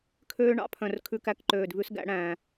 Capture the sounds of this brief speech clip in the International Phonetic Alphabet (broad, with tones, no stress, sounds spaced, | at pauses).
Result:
kʰ øː˧ ɳ ɑ̰˥˧ pʰ œ̃˨˩ r kʰ ʉ˨˥ k æ˨˥ k ǃ øː˨˩ d v ʉ˨˥ s ɡ æ̰˥˧ ɽ æ̃˨˩